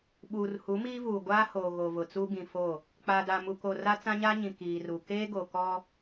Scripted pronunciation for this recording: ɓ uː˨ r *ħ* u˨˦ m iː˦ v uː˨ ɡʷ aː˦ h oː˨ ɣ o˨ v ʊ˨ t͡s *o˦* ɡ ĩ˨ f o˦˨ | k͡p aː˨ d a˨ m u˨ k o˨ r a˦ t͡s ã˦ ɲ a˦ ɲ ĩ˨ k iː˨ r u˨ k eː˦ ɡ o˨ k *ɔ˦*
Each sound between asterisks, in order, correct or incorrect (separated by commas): incorrect, incorrect, correct